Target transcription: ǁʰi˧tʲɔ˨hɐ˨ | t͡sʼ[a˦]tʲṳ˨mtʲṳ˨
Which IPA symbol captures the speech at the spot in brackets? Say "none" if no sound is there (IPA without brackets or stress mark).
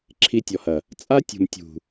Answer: a˦